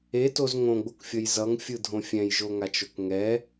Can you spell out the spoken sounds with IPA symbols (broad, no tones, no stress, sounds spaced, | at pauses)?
e t o z ŋ õ ɡ͡b o k fʲ ʌ j z ʌ ŋ fʲ ɯ dʱ õ fʲ ɛ̃ j ʒ o ŋ a t͡ʃ o k ŋ ɛ